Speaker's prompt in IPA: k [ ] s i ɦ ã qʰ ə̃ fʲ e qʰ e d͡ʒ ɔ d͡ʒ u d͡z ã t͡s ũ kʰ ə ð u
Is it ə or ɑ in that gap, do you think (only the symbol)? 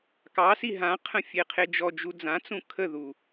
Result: ɑ